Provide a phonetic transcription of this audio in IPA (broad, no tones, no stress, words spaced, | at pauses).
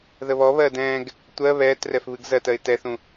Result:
ðəβɔβɜːd ɛ̃ːɡ | tʷɜ βɛːtrɛf βɨɡzɜtɜɪ̯ tɛθũ